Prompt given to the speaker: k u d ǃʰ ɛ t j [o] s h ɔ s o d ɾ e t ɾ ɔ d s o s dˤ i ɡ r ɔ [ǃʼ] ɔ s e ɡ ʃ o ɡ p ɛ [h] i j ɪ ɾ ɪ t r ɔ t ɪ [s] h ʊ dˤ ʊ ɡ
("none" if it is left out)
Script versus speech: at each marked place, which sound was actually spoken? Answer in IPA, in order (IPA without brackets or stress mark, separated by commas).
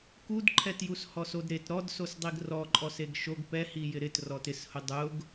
u, ǃʼ, h, s